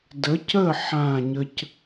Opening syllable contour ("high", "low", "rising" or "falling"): rising